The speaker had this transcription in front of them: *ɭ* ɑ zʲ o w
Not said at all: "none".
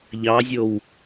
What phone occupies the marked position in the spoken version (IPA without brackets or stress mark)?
ʎ